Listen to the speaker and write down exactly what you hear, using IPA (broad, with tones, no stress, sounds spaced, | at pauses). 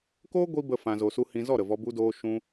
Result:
k oː˦ ɡʷ i˧ b ə˧ f ã˧ z o˧ s u˦ h ĩ˧ z ɔ˦˨ ɾ ə˨ v ɔ˧ b u˧ d oː˧ ʃ ũ˧